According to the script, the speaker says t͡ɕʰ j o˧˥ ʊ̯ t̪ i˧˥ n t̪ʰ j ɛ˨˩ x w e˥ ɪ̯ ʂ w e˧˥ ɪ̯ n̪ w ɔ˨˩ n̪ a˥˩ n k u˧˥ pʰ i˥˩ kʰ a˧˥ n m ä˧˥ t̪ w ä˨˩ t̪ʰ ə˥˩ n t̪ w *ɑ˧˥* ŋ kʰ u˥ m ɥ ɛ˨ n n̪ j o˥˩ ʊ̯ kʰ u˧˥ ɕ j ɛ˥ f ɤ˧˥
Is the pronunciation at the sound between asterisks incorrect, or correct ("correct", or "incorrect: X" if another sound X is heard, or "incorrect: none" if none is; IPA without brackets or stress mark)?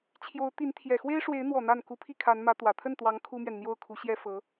correct